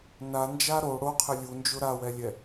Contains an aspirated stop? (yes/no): yes